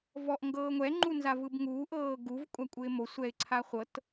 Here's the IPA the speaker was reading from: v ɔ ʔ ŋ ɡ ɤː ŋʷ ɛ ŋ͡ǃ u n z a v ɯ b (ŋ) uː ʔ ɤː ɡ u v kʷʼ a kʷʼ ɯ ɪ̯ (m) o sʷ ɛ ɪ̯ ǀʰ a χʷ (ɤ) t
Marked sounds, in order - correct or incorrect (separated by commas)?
correct, correct, correct